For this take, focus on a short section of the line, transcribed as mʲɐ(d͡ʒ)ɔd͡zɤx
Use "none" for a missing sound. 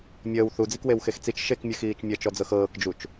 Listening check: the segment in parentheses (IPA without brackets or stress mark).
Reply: t͡ʃ